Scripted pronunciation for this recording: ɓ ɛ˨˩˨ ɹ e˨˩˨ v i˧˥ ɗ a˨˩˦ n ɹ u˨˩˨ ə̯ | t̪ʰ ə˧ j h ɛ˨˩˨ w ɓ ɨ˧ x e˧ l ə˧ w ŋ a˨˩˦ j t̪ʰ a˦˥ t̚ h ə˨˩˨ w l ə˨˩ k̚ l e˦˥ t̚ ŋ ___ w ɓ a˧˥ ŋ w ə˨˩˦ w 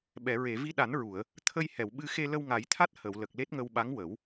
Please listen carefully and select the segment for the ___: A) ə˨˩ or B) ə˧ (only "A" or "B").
B